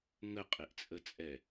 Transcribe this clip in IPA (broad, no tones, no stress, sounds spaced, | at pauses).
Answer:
ŋ ə qʼ ɪ ʔ t͡sʼ ə t͡sʼ ɛ